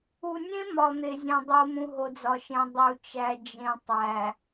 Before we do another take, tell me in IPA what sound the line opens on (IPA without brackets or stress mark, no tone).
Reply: u